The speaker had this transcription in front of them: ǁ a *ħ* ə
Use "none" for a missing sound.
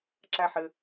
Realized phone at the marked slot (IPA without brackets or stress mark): ħ